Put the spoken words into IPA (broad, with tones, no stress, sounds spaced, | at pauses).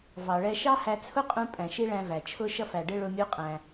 v ɑ˩ ɭ ɛ˧ ʃ ɑ˥ h æ˧ t͡sʰ ʊ˥ qʼ ũ˧ pʼ æ̃˩ ʃ i˧ ɭ æ̃˧ v æ˩ t͡ʃʰ ʊ˧ ʃ ʌ˧ f æ˩ ɖ ɪ˧ ɭ ʊ˧ mʲ u˧ qʼ æ̃˩